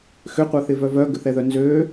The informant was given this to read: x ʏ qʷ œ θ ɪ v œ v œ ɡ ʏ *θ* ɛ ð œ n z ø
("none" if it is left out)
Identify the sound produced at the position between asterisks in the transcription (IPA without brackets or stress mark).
θ